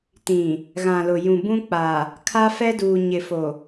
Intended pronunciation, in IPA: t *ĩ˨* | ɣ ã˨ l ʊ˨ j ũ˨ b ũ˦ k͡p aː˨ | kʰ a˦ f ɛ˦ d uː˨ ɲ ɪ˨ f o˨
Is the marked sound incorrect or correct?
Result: correct